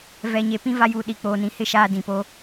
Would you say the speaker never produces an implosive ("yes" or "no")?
no